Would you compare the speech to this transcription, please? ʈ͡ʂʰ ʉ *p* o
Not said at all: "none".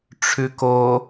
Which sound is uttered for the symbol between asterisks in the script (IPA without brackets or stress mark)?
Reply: k